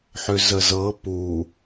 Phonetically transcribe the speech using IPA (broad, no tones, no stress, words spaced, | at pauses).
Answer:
ħʏzəzɤ pu